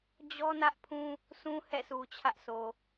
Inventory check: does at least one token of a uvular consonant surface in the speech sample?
no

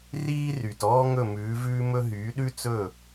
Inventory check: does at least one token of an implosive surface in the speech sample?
yes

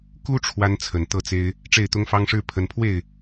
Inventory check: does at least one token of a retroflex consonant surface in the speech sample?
yes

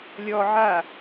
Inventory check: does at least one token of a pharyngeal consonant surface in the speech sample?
yes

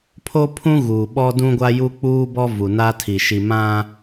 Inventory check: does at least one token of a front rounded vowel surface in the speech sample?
no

